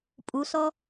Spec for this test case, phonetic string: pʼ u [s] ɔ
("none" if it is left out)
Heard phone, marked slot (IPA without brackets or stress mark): s